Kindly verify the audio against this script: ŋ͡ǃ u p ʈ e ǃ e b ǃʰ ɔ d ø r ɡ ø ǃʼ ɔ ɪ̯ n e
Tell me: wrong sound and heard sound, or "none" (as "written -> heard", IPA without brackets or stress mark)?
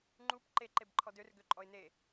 ʈ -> ǃ